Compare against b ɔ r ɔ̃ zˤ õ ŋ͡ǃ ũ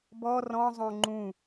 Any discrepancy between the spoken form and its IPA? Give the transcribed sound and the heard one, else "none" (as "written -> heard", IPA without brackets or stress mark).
none